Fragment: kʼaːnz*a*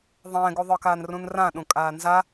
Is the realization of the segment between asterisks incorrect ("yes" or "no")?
no